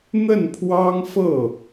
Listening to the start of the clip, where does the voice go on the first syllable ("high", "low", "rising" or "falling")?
falling